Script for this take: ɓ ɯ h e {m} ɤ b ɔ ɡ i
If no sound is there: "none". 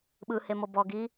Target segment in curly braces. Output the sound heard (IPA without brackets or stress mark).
m